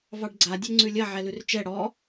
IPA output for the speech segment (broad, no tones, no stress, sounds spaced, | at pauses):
v ɑ ɖ ɡ͡ǀ a dʲ ɛ ŋ͡ǀ ʉ lʲ ɐ ʕ ɛ l ʉ r t͡ʃ ɛ ɽ ɔ